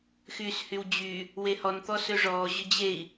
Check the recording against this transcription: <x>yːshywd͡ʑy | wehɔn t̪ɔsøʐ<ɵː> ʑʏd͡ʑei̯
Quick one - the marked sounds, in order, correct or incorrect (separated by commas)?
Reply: correct, incorrect